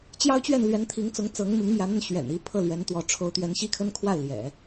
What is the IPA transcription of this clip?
t͡ɕ j ɑ˥ ʊ̯ t͡ɕ ɥ ɛ˥˩ n l ɥ ɛ˧˥ n t̪ʰ i˧˥ ŋ t͡s ʊ˧˥ ŋ t͡s ɤ˧˥ ŋ m i˧˥ ŋ m j ä˧˥ n̪ ə˥˩ n ɕ ɥ ɛ̰˨˩ n i˧˥ pʰ ɤ˥˩ l ɥ ɛ˧˥ n t̪ w ɔ˧˥ ʈ͡ʂʰ o˧˥ ʊ̯ t̪ ɥ ɛ˧˥ n ɕ i˥˩ kʰ ə˥ n kʰ w a˥˩ ɪ̯ l j ɛ̰˨˩˦

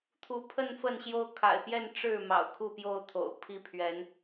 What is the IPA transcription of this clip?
t̪ʰ u˨˦ pʰ ə˥˨ n f ə˥˨ n ɕ j o˦ ʊ̯ kʰ a̰˨˩ ɪ̯ p j ɛ˥˨ n ʈ͡ʂ ɻ̩˥˨ m ɑ̰˨˩ ʊ̯ kʰ u˥˨ p j o˥˨ ʊ̯ t̪ʰ o̰˨˩ ʊ̯ pʰ i˥˨ pʰ ɥ ɛ˨˦ n

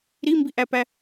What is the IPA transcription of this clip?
ɾ i m b i ʔ æ p æ

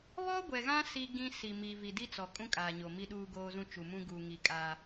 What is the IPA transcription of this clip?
β ɔ˦ ɡʷ ɛ˨ ɣ ã˦ s i˦ ɡ ĩ˦ s i˨ m i˨ v i˨ d i˦ t͡s ɔ˨ kʼ ũ˦ kʼ aː˨ ɲ o˨ m i˦ ɗ uː˦ ɡ oː˦ z ũ˦ t͡ʃ u˨ m ũ˦ ɡ uː˨ ŋ i˨ kʼ aː˦

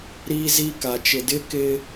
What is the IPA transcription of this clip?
ɾ iː˦ z i˦ k a˨ t͡ʃ ɪ˨ d ɪ˦ k ɪ˦

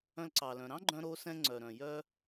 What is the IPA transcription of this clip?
œ̃˧ l ǀ ɑ˩ l œ̃˩ ɾ ɑ̃˥ ɡ͡ǃ œ̃˧ ɾ o˧ s ɛ̃˧ ŋ͡ǀ œ˩ ɾ œ̃˩ j œ˧

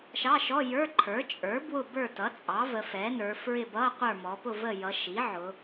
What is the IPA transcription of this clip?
ʃ ɑ˧˥˧ ʃ ɔ˧˥˧ j ə˞˧˥˧ ǃʰ ə˞˩˥ t͡ʃʼ ə˞˩˥ b w ʊ˦˨ b ə˞˦˨ t ʌ˩˥ t͡sʼ ɑ˩˥ v ə˩˧ f ɛ˩˥ n ə˞˩˧ f ɹ ɪ˦˨ b ʌ˧˥˧ qʷ ə˞˦˨ m ɔ˩˧ p ʊ˦˨ v ə˦˨ j ʌ˩˧ ʃ i˩˥ ʕ ʊ˩˧

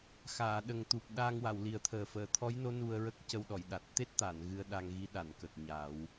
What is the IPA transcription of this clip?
x aː˨˩˨ ɗ ə˨˩ ŋ t̪ u˨˩ p̚ ɗ aː˧ ŋ w a˨˩˨ w l i˨˩˦ ə̯ t̪ʰ əː˨˩ f əː˨˩˨ t̪ʰ ɔ˧˥ j n o˧˥ n u˧ ə̯ ɹ ə˦˥ k̚ c ə˧ w ɗ ɔ˨˩˨ j ɗ a˨˩ t̚ t̪ e˦˥ t̚ t̪ a˨˩˨ n ɣ ɨ˧ ə̯ ɗ a˧ ŋ ɣ i˧˥ ɗ a˨˩˨ n k ə˨˩ k̚ ɲ a˨˩˦ w

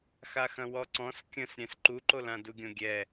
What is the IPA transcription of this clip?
x a x ɐ̃ w ɔ ǀ ɔ̃ s kʲ ə̃ s ɾʲ ɛ̃ s ǃ u ǃ o l ã d u ɡʲ õ ɡʲ ɛ

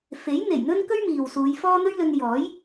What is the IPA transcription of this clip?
f e˨˥ j n̪ e˨˩ j n̪ ɵ˥ n k ɵ˥ ɥ m iː˨ w s uː˨˧ j f ɔː˥ n̪ ɵ˥ ɥ l ɵ˧ n j ɔː˨˥ j

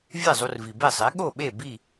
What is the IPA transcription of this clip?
vʲ e˥˩ zˤ u˧ r v i˩ b e˥˩ sˤ e˩˥ ɠ o˥˩ ɓ e˥˩ b i˥˩

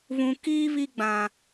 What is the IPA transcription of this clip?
β ũ˨ k iː˦ β i˦ ɡ͡b ã˨

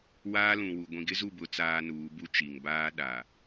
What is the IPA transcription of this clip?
w aː˦ l ũ˨ w u˨ ɡʷ ĩ˨ ɡ ɪ˦ z u˦˨ b ʊ˨˦ t͡s aː˦ n uː˨˦ b u˦ t͡ʃ i˨ ŋ b aː˦ ɗ a˨

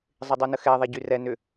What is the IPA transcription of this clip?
zˤ ɪ dˤ u n ə x ɛ ðˤ a ɟ y r ɛ n ʏ

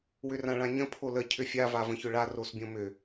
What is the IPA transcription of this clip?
w ʏ r ã ɭ ã ɲ ə̃ pʰ o l ə cʰ ʏ fʲ a v a v ə̃ ç ʏ ɭ a r o s bʲ õ m ʏ

